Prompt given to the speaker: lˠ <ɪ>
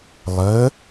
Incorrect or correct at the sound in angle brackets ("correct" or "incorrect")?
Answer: incorrect